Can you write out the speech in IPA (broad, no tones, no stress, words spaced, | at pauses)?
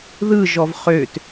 ðɯʒɔv χøt